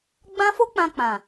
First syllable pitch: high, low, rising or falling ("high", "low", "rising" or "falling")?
high